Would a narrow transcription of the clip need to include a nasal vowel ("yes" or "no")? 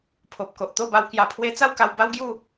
no